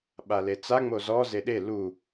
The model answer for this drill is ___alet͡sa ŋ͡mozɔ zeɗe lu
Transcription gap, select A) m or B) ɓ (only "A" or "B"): B